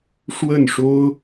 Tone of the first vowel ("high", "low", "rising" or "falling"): falling